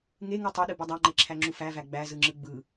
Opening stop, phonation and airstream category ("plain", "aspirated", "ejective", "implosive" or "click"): plain